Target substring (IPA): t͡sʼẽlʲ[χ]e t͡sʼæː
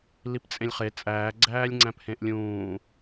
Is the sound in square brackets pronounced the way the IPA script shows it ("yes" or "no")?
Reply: yes